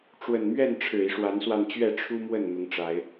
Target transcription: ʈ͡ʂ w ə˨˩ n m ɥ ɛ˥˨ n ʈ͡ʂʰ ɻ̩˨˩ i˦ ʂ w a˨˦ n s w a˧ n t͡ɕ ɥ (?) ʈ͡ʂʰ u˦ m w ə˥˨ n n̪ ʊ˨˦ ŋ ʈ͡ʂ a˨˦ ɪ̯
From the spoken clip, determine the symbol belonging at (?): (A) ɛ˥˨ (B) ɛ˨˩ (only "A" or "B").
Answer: A